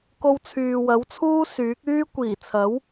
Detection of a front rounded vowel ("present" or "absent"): present